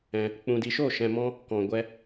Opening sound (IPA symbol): ɛ̃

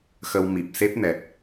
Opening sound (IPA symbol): x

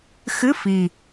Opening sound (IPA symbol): x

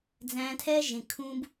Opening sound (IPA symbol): d͡z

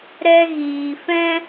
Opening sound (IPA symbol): ɾ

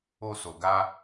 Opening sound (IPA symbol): o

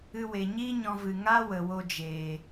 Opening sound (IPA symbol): ɨ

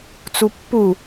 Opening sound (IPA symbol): t͡s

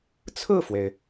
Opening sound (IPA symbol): t͡sʰ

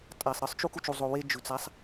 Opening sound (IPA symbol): tʼ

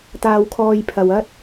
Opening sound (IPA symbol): t̪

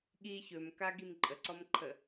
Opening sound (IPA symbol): ɠ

